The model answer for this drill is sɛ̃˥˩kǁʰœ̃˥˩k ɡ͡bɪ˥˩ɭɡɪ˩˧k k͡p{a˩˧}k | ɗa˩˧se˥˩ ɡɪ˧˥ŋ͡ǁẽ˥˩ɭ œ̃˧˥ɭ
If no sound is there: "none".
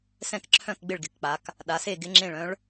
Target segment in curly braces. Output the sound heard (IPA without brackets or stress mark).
a˩˧